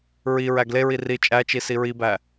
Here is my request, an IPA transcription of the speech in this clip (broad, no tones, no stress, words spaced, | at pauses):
ɹi ɹæɡleɹi ri t͡ʃʼæt͡ʃi siɹibæ